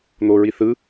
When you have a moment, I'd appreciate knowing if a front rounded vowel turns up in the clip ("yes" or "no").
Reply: no